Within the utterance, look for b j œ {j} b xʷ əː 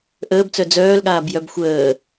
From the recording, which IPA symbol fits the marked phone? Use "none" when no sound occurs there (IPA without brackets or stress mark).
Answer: none